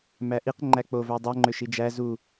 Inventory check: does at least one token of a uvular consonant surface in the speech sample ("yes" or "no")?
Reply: yes